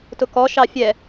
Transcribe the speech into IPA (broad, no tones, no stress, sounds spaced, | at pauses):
t ʊ k ɔ ʃ ɑ fʲ ɛ